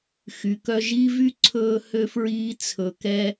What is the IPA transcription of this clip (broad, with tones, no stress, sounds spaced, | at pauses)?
x y˩ k œ˧ ʒ i˥ v y˥ ǀʰ ɵː˧ h ø˧ f ɹ iː˧ t͡sʰ ɵ˩ k ɛ˧